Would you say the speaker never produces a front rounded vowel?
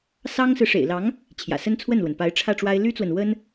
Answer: no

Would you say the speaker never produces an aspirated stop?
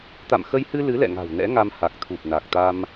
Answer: no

